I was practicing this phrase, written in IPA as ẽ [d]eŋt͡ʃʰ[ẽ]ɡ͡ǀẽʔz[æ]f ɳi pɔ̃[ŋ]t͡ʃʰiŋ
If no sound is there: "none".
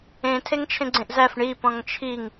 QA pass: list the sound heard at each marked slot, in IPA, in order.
tʰ, ẽ, æ, ŋ

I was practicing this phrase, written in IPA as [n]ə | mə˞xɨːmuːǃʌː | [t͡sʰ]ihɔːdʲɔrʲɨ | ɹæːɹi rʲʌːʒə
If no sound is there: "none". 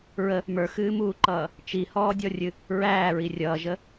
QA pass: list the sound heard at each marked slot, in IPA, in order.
ɹ, t͡ʃ

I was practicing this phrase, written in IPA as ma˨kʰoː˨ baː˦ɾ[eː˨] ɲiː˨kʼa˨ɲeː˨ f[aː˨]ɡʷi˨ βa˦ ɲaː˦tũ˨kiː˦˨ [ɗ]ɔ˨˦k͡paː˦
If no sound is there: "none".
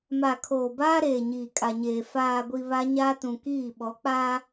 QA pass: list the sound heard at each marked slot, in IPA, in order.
eː˨, aː˨, ɓ

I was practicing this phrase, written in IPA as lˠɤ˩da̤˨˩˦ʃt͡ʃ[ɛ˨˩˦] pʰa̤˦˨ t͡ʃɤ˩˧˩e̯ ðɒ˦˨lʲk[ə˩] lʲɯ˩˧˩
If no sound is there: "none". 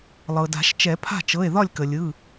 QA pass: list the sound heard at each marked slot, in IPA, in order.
ɛ˨˩˦, ə˩

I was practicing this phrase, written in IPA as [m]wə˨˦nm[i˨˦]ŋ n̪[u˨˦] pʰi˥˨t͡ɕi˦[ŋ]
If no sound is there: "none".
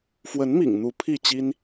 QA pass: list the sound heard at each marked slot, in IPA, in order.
f, ḭ˨˩, u˨˦, n

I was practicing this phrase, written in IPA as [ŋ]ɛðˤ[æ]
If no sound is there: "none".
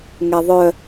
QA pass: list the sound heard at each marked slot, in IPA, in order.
ŋ, œ

